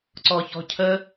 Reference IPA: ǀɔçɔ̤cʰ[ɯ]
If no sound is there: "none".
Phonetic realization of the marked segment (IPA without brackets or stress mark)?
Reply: ə